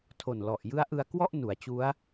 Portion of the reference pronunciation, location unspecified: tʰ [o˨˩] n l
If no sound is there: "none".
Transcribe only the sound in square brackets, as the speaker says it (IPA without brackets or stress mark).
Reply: o˨˩